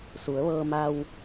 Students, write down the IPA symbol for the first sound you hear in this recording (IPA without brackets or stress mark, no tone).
s